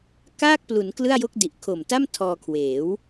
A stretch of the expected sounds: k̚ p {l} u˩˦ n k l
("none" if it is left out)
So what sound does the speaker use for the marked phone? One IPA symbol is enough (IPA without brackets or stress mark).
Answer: l